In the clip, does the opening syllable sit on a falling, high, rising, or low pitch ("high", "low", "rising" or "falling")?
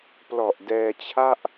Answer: low